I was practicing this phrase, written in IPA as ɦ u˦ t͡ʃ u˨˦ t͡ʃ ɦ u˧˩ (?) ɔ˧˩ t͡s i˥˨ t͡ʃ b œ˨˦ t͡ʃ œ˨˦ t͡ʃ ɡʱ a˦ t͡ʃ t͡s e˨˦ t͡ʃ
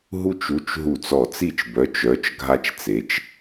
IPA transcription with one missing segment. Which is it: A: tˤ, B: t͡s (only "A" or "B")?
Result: B